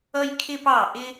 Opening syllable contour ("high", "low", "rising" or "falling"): high